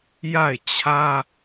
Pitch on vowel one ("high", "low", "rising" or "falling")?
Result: falling